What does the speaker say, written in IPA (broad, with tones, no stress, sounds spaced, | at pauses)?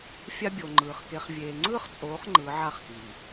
fʲ a˦ bʲ o˨ ŋ͡ǃ ɯː˨ χ k e˨ χ vʲ eː˨ ŋ͡ǀ ɯː˦ χ t͡sʼ oː˨˦ χ ŋ͡ǃ ɯ˨˦ ʕ a˦ χ k i˨